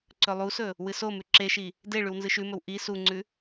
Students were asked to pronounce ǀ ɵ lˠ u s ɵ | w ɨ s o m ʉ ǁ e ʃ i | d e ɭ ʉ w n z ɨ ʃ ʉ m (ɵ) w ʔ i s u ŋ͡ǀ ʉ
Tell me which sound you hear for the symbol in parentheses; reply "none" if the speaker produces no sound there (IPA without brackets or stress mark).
ɵ